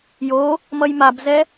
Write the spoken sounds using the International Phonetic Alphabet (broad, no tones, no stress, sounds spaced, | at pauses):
j o | m ʌ j m a b z ɛ